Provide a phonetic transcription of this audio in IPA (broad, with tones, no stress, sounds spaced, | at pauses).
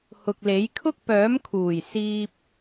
h ʊ˨ k̚ l e˨˥ j kʰ ʊ˥ k̚ p œː˨˥ m kʰ uː˨˩ j s iː˧ p̚